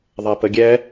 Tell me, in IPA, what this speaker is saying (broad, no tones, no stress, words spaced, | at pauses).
ðˤapəɡʲɛ